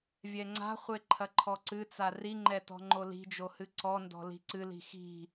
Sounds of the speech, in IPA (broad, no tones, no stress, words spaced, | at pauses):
vʲɛŋ͡ǀa̤χʷe ǃʰɐǃʰɔǀɨt͡sa riŋ͡ǃɛ tɔ̤ŋ͡ǃoli̤d͡ʒo hɨǀɔndɔ̤ li̤ǀɨli̤ xi̤